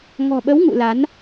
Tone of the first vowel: low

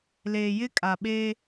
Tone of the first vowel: low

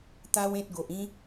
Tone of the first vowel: high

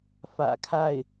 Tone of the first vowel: low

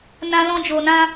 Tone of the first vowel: high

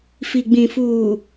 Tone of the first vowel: low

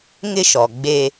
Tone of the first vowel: high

